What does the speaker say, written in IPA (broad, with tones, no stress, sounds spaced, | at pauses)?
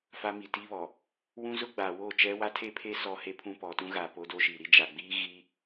f a˦ m i˨ t i˦ β ɔ˨ | w ũ˦ z ʊ˦ ɡ͡b a˨ w o˦˨ t͡ʃ ɛ˦ w a˦ tʰ e˦ pʰ e˦ s ɔ˦ h e˦ pʰ ũ˦ p ɔ˨ t ũ˦ ɣ a˨ p o˦ d o˦ ʃ i˨ ɾ i˦ d͡ʒ a˨ ɡ͡b iː˦ ɣ i˦